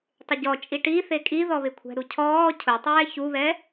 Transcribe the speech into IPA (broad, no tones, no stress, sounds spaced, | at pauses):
tˤ ɪ ɟ ɔ t͡ʃʼ i ʈ i θ e kʼ i ð ɔ β ɪ kʷʰ ɛ̤ ɾ u cʰ ɔː cʰ ʊ tˤ ɛː ç u β ɛ